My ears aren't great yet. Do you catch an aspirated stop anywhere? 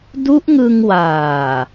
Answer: no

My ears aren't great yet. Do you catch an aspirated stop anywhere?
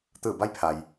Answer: yes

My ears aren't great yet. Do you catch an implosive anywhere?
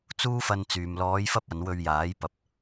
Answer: no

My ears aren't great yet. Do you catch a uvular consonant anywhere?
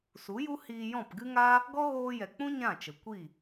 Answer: no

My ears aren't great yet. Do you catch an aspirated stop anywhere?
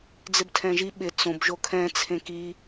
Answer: yes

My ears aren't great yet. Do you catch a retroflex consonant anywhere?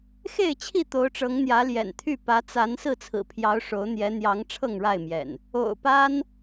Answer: yes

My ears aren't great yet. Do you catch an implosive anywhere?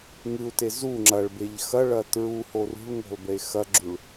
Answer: no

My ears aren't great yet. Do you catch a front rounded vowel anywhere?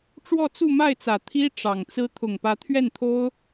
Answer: no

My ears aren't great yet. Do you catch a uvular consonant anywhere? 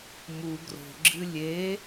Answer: no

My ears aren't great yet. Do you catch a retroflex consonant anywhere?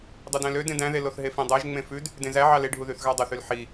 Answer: yes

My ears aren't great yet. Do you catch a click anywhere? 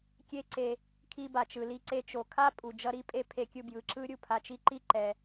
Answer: yes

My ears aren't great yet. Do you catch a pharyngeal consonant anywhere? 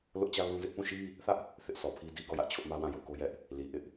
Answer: no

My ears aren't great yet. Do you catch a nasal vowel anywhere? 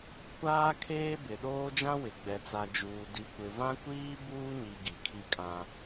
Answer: yes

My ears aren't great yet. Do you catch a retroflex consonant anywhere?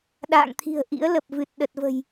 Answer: no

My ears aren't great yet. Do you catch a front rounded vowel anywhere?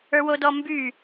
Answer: yes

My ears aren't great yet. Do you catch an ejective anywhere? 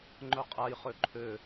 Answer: yes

